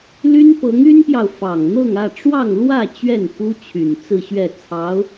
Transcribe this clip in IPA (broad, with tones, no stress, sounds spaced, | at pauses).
l y˥ n p ɤ˧˥ ŋ y˥ n p j ɑ˨ ʊ̯ f ɑ˨˩ ŋ n̪ ɤ˥˧ ŋ ä˥˧ ʈ͡ʂ w ɑ˥˧ ŋ l w ä˥˧ t͡ɕ ɥ ɛ˥˩ n f u˥ t͡ɕʰ y˨˩ n t͡s ɹ̩˥˧ ɕ ɥ ɛ˥˩ t͡sʰ ɑ˧˥ ʊ̯